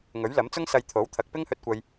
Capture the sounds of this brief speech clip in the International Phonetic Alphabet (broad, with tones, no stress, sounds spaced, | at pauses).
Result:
ŋ ɵ˨˥ ɥ l ɐ˨˥ m t͡s ʊ˥ ŋ s ɐ˧ j t̪ʰ o˨˥ w t̪ʰ ɐ˨˥ k̚ p ɪ˥ ŋ h ɵ˧ t̚ kʷ ɐ˧ j